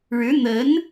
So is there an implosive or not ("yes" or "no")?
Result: no